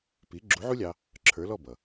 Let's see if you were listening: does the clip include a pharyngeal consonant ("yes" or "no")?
yes